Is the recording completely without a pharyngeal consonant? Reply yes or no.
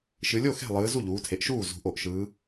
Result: yes